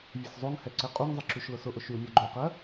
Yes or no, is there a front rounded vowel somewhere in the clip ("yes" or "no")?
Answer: yes